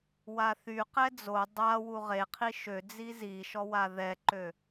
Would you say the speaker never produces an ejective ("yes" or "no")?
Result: yes